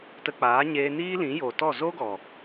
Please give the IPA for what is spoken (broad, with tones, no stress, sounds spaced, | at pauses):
t ə˧ k͡p aː˨˦ ɲ eː˧ n iː˦ l ĩ˨˦ j oː˨ t ɔ˦˨ z o˦ ɡ ɔ˨